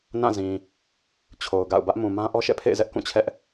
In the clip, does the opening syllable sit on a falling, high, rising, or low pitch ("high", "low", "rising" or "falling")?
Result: falling